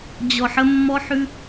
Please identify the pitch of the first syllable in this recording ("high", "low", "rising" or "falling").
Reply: low